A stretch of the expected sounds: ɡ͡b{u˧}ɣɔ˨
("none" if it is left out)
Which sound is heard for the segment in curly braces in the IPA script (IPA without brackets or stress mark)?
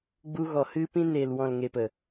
u˧